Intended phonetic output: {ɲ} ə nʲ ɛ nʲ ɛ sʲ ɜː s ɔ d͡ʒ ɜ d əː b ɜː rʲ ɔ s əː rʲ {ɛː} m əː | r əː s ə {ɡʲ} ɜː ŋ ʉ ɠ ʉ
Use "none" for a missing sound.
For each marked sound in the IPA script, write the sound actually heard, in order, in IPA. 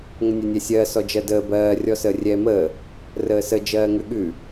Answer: ŋ, ɛː, d͡ʒ

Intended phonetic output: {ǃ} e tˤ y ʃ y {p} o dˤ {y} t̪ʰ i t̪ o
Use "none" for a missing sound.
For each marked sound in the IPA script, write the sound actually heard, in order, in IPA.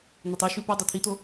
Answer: n̪, p, u

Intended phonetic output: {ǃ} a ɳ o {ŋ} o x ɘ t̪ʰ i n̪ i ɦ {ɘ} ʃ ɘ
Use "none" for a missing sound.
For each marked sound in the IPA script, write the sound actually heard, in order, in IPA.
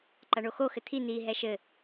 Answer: ǃ, x, ɛ

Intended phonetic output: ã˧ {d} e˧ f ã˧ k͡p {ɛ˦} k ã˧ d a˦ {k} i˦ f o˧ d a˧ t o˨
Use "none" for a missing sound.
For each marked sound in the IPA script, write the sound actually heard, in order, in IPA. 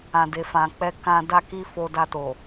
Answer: d, ɛ˦, k

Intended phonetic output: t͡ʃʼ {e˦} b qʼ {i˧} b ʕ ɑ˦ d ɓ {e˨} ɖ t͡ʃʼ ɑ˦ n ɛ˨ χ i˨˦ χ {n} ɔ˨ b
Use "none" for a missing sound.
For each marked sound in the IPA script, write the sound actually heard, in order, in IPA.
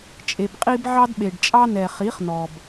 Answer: e˨, i˧, e˨, n

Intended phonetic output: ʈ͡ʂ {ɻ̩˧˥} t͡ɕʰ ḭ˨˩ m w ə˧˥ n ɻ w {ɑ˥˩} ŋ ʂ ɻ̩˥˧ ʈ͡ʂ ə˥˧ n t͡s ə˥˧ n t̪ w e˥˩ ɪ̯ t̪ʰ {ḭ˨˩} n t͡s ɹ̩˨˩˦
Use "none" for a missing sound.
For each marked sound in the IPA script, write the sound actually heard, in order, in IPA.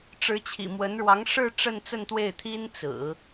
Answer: ɻ̩˧˥, ɑ˧˥, i˥

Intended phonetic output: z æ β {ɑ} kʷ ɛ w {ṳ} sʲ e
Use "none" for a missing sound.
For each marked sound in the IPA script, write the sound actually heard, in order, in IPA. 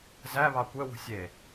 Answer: ɑ, ṳ

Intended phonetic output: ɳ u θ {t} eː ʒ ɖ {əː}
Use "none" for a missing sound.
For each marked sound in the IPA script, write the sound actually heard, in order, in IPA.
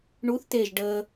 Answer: t, əː

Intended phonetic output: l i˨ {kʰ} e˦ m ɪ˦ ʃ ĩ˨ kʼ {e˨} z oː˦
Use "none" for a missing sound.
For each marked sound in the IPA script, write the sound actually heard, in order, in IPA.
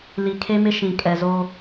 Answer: kʰ, ɛ˨

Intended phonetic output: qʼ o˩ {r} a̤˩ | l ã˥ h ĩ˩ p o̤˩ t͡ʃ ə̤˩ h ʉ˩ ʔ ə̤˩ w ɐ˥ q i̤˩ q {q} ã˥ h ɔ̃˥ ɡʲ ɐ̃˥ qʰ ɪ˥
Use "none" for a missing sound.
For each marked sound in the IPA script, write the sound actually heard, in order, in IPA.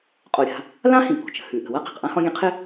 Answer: ɾʲ, ʔ

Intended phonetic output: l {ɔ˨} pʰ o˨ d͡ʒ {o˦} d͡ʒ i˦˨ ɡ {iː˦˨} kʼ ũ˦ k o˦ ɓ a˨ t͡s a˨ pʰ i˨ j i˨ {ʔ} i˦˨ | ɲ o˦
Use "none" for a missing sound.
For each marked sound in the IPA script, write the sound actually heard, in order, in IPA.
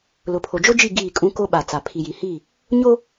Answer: ʊ˨, o˦, iː˦˨, h

